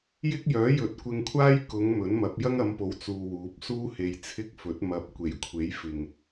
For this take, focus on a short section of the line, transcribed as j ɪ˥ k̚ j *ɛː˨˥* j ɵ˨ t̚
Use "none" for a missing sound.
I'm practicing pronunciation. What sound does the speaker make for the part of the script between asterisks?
œː˨˥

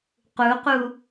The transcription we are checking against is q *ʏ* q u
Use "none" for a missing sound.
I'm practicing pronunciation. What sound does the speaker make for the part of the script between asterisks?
u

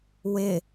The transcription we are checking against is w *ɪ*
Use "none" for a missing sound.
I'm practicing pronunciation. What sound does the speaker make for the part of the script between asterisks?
ɪ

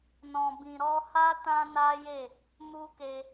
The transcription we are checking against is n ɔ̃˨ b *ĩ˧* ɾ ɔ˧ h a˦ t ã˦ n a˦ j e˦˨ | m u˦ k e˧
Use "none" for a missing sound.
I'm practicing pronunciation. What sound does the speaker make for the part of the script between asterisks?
ĩ˨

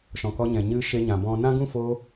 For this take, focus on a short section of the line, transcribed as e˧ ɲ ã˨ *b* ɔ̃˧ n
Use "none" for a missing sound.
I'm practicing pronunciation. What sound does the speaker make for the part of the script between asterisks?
b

